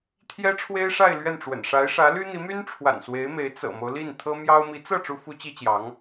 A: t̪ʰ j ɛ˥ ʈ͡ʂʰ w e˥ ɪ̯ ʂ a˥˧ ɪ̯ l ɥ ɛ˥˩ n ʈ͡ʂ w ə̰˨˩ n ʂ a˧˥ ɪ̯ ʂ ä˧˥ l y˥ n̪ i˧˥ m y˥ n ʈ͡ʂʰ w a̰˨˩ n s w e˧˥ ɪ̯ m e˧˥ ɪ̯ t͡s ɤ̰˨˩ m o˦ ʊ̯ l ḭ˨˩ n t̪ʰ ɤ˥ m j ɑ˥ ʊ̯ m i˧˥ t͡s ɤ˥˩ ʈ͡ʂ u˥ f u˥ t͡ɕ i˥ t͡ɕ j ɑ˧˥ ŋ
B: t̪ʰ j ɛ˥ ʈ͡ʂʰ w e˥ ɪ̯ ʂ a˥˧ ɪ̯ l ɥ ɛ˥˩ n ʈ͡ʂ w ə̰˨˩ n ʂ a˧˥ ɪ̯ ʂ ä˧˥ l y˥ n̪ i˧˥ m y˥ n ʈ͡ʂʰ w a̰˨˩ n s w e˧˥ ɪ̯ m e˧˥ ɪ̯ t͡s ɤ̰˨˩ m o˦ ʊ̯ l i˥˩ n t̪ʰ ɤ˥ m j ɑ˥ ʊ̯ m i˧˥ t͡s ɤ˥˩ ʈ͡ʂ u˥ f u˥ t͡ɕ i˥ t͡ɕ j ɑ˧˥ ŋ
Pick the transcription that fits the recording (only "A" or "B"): B